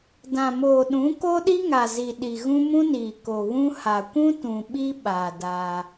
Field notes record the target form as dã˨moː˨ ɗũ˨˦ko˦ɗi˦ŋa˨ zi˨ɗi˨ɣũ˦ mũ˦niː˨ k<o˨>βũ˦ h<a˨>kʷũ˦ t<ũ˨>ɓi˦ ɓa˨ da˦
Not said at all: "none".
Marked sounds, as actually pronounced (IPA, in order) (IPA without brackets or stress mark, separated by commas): o˨, a˨, ũ˨